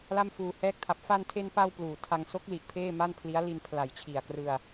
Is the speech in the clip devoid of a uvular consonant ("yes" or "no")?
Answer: yes